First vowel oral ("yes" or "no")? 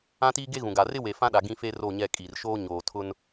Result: no